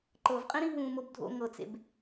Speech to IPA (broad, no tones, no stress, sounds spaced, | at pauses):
ǃ ɤ v qʼ ĩ ɾ ĩ ɦ ũː m o b dʱ o̰ ŋ ɤ t͡s ḛ b